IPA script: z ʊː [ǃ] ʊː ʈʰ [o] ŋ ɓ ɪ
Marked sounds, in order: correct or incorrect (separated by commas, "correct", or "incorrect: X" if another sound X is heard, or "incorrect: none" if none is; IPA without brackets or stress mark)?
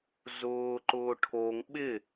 correct, correct